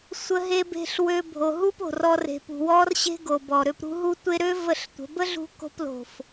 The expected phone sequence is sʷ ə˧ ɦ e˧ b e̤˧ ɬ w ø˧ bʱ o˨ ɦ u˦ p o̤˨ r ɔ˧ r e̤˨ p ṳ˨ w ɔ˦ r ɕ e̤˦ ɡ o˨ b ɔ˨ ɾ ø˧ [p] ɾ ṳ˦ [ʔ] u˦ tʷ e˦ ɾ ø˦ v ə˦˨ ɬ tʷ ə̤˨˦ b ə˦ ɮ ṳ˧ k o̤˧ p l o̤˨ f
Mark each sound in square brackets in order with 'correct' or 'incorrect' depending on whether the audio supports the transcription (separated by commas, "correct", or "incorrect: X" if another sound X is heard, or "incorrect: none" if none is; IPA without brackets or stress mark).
correct, incorrect: ɦ